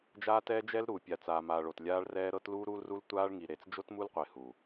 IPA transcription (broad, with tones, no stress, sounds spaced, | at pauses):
d͡ʒ aː˦ t ɛː˦ d͡ʒ ɛ˦ l ɾ uː˨ pʲ a˨ t͡s aː˨ m aː˨ ɭ o˨ t lʲ aː˦ ɭ r ɛː˦ ɾ ɤ˦ t l uː˦ ɾ uː˦ l r u˦ l tʷ aː˦ ɭ ŋ i˨ ɾ e˨ t͡s d͡ʒ o˦ t m u˦ l qʷ e˨ h u˨